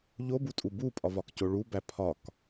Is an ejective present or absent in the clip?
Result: present